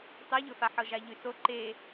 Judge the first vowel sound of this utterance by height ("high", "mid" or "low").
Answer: mid